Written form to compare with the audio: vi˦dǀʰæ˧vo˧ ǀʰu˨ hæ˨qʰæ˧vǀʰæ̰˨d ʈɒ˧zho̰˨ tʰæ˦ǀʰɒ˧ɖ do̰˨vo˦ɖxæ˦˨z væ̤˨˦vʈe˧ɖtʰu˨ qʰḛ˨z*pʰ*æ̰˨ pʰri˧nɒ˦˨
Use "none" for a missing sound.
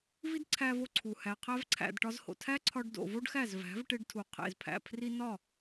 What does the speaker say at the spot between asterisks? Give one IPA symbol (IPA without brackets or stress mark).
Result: pʰ